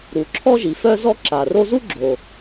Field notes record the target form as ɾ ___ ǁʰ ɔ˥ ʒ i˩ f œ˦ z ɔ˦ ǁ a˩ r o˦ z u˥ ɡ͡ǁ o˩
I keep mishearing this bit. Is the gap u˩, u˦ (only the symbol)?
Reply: u˩